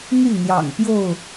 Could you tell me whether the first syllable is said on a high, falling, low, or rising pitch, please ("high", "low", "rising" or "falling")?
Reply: falling